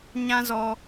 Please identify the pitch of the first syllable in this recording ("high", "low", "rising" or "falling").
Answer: high